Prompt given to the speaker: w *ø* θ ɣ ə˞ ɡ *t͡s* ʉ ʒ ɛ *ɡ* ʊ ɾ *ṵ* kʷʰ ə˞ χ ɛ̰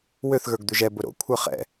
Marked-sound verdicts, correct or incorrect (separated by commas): correct, incorrect, incorrect, incorrect